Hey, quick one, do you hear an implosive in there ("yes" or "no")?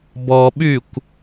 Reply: yes